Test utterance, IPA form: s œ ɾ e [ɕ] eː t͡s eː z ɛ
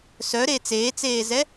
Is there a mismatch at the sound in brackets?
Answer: yes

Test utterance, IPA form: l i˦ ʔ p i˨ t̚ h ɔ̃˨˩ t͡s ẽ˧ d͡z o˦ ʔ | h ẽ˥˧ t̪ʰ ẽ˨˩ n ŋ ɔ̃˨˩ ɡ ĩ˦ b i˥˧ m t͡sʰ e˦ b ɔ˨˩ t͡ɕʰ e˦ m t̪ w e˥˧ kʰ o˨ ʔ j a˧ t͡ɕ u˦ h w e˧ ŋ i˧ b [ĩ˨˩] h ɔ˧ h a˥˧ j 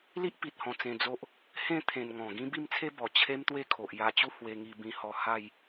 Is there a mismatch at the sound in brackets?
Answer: yes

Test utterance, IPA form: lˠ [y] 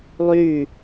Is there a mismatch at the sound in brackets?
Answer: no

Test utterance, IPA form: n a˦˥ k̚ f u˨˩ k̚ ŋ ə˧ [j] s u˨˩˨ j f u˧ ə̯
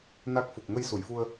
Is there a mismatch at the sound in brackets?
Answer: no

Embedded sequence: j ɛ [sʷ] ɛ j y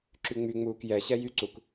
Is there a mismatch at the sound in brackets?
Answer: yes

